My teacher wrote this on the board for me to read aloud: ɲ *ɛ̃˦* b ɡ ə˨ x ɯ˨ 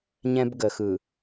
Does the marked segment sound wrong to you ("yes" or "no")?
no